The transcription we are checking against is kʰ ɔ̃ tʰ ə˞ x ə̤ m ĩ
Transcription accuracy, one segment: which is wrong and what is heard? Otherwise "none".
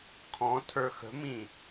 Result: none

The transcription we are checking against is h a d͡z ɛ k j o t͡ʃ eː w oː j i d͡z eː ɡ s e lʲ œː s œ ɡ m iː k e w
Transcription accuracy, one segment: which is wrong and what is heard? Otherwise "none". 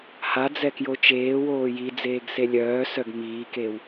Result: none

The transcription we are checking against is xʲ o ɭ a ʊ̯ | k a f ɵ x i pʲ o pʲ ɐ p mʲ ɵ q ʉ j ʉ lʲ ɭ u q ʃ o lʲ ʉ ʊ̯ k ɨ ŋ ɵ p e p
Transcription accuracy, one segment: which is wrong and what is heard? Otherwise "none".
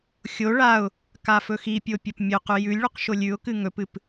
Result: e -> ɨ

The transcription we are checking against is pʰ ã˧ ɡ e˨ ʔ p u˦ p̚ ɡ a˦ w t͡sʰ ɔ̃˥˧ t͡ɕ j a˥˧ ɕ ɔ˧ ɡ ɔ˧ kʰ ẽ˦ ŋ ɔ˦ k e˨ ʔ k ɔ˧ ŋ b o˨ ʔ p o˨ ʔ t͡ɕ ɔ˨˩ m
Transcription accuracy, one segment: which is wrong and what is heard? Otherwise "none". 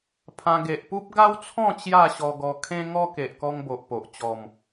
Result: none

